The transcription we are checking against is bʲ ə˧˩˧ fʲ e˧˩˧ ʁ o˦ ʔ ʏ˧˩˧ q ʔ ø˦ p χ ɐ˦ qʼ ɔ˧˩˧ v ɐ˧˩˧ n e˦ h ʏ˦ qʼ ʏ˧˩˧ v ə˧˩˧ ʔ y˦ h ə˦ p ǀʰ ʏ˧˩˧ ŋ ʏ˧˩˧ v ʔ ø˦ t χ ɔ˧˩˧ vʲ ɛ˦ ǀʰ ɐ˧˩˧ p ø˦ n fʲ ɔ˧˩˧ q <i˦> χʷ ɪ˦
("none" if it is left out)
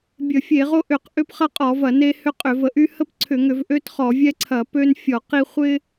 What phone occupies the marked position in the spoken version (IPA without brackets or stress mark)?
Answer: i˦